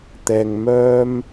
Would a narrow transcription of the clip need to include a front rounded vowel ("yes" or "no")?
yes